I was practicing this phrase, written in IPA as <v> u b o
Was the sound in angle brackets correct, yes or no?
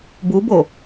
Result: no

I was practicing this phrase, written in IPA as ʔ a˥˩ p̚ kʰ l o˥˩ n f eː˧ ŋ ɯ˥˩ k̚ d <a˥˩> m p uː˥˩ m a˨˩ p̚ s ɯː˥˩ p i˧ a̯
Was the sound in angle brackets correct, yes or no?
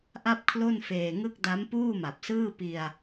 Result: no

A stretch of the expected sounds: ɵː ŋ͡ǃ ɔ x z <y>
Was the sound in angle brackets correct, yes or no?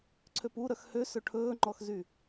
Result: yes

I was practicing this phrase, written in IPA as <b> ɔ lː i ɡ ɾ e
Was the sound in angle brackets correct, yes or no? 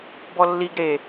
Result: yes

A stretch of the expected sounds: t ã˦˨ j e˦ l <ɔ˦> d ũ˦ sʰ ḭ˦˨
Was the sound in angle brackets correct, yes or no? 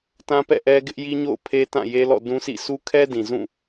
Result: no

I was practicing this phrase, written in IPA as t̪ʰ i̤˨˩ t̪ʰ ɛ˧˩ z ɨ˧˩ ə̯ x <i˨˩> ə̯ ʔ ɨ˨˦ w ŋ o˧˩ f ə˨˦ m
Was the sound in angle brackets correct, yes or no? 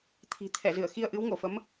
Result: no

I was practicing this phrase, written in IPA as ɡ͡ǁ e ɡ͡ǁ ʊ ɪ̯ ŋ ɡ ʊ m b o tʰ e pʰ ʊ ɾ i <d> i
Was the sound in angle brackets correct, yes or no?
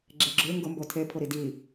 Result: yes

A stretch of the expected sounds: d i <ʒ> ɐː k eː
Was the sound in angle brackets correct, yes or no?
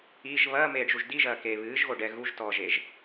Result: yes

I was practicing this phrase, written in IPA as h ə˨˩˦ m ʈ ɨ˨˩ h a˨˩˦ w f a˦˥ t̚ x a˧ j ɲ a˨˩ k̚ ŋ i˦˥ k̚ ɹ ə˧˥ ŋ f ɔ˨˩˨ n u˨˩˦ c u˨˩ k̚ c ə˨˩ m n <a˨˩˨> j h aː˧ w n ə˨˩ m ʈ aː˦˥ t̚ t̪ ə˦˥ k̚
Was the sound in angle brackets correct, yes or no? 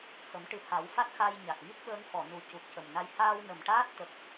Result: no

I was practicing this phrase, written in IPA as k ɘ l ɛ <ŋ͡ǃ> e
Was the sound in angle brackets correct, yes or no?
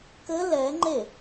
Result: yes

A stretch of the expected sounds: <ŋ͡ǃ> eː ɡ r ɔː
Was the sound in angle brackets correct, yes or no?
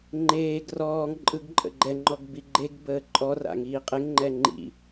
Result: yes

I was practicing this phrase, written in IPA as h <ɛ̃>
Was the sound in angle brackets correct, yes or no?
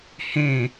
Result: no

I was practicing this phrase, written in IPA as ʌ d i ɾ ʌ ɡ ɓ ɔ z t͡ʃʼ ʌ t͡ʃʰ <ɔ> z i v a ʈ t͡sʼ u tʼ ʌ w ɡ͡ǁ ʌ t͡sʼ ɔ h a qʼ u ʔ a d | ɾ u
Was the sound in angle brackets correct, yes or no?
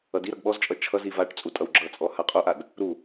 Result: no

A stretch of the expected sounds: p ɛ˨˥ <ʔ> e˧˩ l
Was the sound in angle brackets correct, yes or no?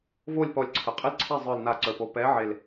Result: no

